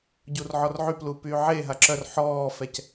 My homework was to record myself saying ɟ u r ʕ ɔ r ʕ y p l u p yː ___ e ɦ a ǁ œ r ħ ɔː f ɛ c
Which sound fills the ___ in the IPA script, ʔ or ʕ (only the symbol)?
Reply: ʕ